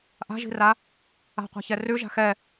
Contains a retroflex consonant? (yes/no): no